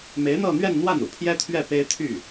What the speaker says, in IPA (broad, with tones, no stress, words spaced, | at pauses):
me˧˥ɪ̯n̪ɤ˥˧n̪ɥɛ˥˧nn̪wa˥˩n ṵ˨˩pʰjɛ˥t̪ʰɥɛ˥˩ pe˥ɪ̯t̪ʰy˥˩